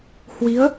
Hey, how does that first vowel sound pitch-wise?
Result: rising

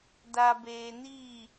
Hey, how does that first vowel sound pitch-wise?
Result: low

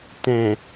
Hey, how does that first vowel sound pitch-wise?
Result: low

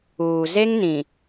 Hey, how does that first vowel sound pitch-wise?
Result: low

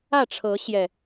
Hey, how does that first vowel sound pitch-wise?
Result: falling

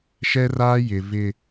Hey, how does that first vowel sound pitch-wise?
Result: high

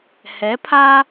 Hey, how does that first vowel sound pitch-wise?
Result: rising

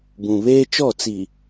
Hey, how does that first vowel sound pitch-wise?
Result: low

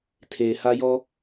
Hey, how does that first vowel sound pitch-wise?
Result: low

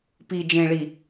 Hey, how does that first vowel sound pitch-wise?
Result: low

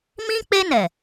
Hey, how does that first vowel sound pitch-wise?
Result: high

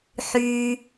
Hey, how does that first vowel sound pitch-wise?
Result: high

